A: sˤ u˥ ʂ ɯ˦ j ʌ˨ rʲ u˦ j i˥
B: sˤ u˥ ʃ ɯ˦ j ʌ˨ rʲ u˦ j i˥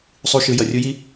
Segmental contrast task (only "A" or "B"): B